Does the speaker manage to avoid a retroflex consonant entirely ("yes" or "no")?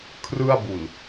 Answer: yes